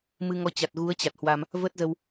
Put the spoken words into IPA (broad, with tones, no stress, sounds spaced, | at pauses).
m ɨ˧ ŋ ɔ˨˦ t͡ɕ a˨˩ t̚ ɣ u˨˦ ə̯ t͡ɕ a˨˩ t̚ h w a˧ m | v ə˦˥ t̚ z ə˧ w